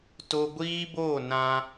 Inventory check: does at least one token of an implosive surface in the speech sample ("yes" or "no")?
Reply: no